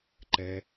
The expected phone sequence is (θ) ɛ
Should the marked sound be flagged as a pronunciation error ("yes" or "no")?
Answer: yes